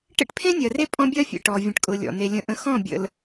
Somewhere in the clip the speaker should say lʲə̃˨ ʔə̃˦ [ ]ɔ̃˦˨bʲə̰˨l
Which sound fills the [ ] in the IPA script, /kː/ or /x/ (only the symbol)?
x